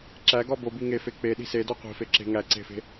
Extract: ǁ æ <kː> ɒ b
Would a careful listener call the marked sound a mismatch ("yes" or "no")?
yes